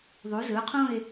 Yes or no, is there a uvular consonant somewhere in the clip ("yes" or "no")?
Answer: yes